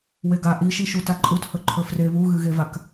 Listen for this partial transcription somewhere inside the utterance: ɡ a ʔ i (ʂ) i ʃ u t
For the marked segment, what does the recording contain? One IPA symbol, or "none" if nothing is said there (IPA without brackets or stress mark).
ʃ